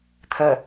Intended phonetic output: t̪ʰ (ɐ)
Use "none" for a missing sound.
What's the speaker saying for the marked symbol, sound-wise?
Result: ə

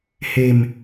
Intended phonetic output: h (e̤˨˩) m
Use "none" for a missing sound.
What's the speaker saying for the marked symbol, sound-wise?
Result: e̤˨˩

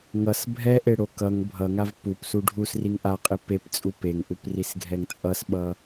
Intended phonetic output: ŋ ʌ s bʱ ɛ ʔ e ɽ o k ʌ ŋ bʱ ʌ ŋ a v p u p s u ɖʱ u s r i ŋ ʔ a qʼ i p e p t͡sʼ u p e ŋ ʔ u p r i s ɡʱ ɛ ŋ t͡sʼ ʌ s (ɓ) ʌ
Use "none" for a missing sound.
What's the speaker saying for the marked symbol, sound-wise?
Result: ɓ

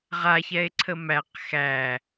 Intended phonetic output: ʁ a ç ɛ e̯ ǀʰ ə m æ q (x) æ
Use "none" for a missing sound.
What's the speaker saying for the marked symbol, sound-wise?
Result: x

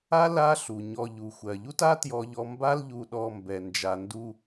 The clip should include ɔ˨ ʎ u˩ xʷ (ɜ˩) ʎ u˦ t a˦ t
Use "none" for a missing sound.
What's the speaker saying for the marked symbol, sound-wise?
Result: ɜ˩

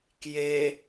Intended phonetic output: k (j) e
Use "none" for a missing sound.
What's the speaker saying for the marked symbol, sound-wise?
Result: j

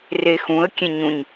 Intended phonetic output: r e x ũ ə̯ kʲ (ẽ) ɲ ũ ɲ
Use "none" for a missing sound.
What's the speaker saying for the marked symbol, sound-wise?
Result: ẽ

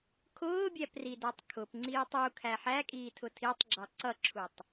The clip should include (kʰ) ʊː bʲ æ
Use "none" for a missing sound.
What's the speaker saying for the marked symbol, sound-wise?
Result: kʰ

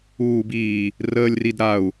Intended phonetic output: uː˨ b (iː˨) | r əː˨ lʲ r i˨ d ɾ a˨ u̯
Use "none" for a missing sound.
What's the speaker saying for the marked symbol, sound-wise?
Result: iː˨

